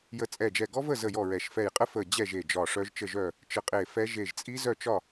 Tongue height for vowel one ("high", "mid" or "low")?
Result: mid